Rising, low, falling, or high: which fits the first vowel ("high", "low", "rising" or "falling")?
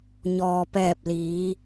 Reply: low